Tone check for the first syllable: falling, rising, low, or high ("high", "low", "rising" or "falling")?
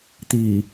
low